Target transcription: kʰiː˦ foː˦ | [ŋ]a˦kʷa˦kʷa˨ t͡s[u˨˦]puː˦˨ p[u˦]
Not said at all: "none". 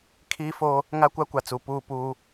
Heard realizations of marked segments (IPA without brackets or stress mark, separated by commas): ŋ, u˨, uː˦